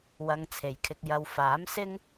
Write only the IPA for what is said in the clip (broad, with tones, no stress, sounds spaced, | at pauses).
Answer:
w ɐ˧ ŋ t͡sʰ e˨ j kʰ ɪ˧ k̚ j ɐ˨ w f aː˨˥ m s ɪ˥ ŋ